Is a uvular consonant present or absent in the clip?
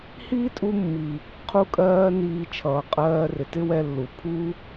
present